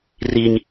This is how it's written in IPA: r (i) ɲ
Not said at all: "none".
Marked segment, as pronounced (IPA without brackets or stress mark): i